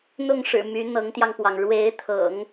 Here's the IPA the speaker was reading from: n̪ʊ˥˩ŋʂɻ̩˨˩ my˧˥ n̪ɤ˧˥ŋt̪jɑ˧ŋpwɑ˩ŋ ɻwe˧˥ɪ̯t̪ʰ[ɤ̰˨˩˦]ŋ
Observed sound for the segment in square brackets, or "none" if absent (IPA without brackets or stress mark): ɤ̰˨˩˦